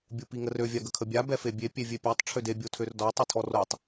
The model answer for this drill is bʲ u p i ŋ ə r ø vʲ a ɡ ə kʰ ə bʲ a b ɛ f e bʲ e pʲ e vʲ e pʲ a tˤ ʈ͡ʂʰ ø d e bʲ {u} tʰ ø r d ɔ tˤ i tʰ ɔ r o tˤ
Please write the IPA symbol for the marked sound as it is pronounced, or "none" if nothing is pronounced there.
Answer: o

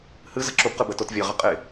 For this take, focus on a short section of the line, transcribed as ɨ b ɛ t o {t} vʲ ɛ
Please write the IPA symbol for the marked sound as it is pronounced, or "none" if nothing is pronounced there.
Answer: t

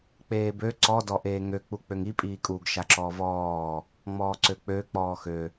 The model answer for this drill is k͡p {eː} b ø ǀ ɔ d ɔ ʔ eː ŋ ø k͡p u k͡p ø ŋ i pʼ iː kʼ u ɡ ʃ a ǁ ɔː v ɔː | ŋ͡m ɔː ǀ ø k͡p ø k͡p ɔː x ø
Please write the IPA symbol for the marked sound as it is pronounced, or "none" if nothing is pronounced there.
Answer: eː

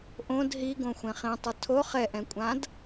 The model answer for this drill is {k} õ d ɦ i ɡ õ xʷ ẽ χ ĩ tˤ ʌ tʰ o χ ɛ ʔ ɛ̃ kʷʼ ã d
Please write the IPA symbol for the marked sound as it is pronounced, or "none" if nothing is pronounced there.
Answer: ʔ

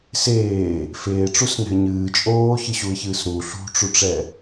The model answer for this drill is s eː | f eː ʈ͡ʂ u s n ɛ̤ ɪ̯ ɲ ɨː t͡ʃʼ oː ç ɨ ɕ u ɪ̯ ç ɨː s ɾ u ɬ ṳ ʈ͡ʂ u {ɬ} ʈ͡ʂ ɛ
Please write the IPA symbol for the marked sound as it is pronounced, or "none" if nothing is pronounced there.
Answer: none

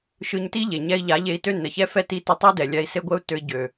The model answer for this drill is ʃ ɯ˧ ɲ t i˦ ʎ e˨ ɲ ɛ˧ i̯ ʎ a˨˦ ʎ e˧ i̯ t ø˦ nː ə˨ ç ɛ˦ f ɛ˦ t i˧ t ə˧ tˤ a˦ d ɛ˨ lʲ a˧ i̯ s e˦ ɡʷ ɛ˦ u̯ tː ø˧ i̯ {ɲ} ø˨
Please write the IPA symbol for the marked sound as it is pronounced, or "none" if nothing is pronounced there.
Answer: ɟ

